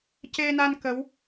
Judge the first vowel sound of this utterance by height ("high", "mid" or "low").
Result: mid